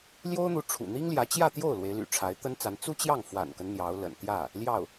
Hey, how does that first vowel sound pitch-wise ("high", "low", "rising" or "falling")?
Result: high